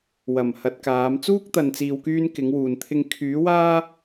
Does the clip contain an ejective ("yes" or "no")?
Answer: no